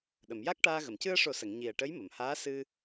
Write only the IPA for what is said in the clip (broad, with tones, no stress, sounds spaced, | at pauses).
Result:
ɗ ə˨˩˨ m j a˦˥ k̚ ʈ aː˧ ɣ ə˨˩˨ m c ɨ˧ ə̯ ʂ o˨˩˦ s ə˨˩˨ ŋ ɲ i˨˩ ə̯ ʈ ə˧˥ j m ə˨˩˨ m h aː˧˥ s ɨ˧